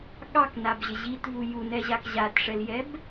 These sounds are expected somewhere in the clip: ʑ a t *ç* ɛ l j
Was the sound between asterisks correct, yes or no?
no